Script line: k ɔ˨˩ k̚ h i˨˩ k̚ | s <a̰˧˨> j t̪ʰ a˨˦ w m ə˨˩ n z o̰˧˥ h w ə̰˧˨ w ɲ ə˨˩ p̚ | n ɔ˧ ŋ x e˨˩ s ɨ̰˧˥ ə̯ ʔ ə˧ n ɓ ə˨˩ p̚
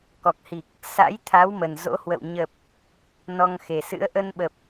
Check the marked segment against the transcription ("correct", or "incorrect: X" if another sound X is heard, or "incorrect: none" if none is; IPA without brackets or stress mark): incorrect: a̰˧˥